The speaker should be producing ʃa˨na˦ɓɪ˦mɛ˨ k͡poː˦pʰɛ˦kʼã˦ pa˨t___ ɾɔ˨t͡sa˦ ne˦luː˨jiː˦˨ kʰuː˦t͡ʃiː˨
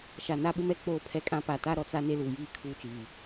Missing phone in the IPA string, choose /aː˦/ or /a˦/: a˦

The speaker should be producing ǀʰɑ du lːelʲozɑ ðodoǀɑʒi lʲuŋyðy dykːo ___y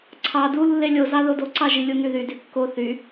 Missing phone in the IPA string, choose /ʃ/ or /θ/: θ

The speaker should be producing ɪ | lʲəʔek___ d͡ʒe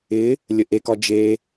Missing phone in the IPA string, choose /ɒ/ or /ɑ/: ɒ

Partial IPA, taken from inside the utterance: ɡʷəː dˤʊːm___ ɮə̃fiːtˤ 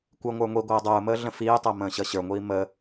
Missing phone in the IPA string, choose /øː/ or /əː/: əː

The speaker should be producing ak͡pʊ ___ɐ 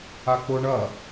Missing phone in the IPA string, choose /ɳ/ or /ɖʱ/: ɳ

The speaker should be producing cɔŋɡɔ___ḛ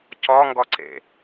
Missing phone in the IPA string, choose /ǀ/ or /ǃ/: ǀ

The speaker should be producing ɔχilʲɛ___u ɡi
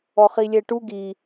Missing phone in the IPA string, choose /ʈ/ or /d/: ʈ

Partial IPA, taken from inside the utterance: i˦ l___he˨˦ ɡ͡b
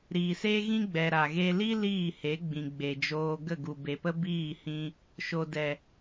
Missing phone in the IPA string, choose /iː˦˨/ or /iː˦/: iː˦˨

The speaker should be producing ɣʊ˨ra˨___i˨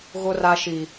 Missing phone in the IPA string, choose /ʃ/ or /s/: ʃ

